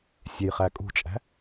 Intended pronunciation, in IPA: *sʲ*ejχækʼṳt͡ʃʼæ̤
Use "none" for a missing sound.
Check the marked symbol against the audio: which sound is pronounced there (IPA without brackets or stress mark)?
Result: sʲ